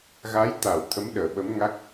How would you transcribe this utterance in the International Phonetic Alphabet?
ɣ a˨˦ j t̪ a˧˩ w t̪ʰ ə˨˦ m ɗ əː˧˩ ɓ ə˨˦ m ŋ a˦˥ k̚

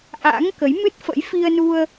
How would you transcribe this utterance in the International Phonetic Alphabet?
ʔ a̰˧˥ ŋ k ə˨˦ j m ɨ˦˥ t̚ f ə̰˧˥ j f i˧ ə̯ n u˧ ə̯

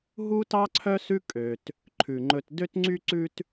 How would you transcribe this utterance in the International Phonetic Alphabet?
ɦ u˥ t ɑ˥ ǀʰ œ˥ s ʉ˥ kʼ ø˨ t | ǃʰ ʉ˩ ŋ͡ǃ ɵ˨ t d ø˦ t ŋ͡ǀ y˦ ǀ ʉ˦ t

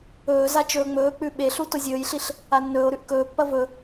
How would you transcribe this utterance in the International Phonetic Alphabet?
ɵː z a t͡ʃ ɵː ŋ͡m ɵː k͡p ʉ ɓ e ɬ u t o zʲ ɵː j ɬ i ɬ | a nː ɵː o̯ ɾ ʉ ʔ k ɵː pː ɐ v ɵ

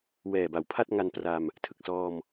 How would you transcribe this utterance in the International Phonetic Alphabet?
w ɛː˨˩ b a˩˦ w pʰ a˥˩ t̚ ŋ a˧ n p r a˧ m | tʰ ɯ˨˩ k̚ s ɔː˧ m

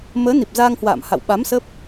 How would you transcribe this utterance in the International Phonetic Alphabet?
m əː˨˦ n i˨˩ p̚ z aː˧ ŋ h w a̰ː˧˨ m h a̰˧˨ w ɓ a˨˦ m s ə˦˥ p̚

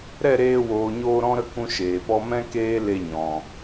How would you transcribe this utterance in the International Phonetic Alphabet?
ɾ ɛ˦˨ ɾ eː˧ w oː˨ ɲ oː˧ ɾ ɔ̃˦ ɾ ə˦ k ũ˦ ʃ eː˨ p ɔ˦ m ɛ̃˦ k eː˦ l e˧ ɲ ɔ̃˨

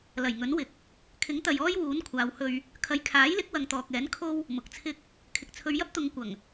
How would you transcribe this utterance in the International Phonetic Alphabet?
l ɐ˨˩ j ŋ ɵ˨˥ n w ɪ˨˥ k̚ | kʰ ɪ˨˥ ŋ t̪ ɐ˨ j ɔː˥ j w uː˨˥ n kʷʰ aː˨˧ w h ɵ˧ ɥ | kʰ ɐ˨ j kʰ aː˨˥ j l ɪ˨˥ k̚ w ɐ˨ ŋ t̪ ɔː˨ k̚ ɛː˨˥ n kʰ o˥ w | m ʊ˨ k̚ t͡sʰ ɪ˥ k̚ | kʰ ɪ˨ k̚ t͡sʰ ɵ˨˧ ɥ j ɐ˥ p̚ t̪ ʊ˨˧ ŋ kʷ ɐ˨˩ ŋ

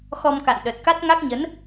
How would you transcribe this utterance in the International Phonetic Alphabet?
x ɔ˧ m k a̰˧˨ n ɗ ə˨˩ t̚ k a˦˥ t̚ ŋ a˦˥ k̚ ɲ ə˨˦ n

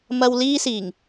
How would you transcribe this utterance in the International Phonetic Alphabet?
m ɐ˥ w l iː˥ s iː˨˩ ŋ

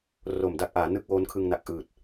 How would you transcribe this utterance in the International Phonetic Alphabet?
r o˨˩ m d a˥˩ k̚ ʔ aː˩˦ n ɯ˥˩ k̚ w oː˦˥ n kʰ ɯ˧ ŋ n a˨˩ k̚ ʔ ɯː˨˩ t̚

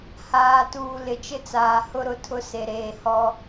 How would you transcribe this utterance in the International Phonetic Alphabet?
h aː˨ t uː˨ l ɪ˨ t͡ʃ ɪ˦ t͡s aː˨ h ʊ˦ ɾ ʊ˨ tʰ ʊ˦ s e˨ ɾ eː˨ h ɔ˦

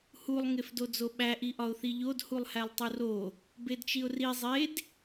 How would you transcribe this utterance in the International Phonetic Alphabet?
h u lˠ ŋ e f d o d͡z o ɓ æ ʔ i ʔ ɒ ʊ̯ θ i ʎ o d h u lˠ h æ lˠ tˤ u r o | b e d t͡ʃ i ʊ̯ r i zˤ e d

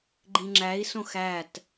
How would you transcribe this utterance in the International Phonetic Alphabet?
ɡ͡ǃ ĩ ŋ͡ǁ æ i̯ s õ x æ t

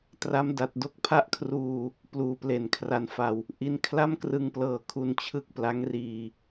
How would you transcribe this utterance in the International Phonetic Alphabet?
t r a˦˥ m d a˨˩ t̚ d o˦˥ k̚ pʰ a˥˩ ʔ kʰ r uː˧ | p l uː˨˩ p l e˨˩ n kʰ r a˧ n f a˧ w | ʔ i˦˥ n kʰ l a˥˩ m k r ɯ˧ ŋ p l ɤː˨˩ kʰ u˧ n t͡ɕʰ ɯ˥˩ k̚ p l a˦˥ ŋ r iː˧

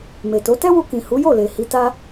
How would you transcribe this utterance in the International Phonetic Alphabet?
m e˨ t o˨˦ t ɛ˦ w u˧ k ĩ˨ h u˨˦ j o˦˨ l e˨ h i˧ t a˦

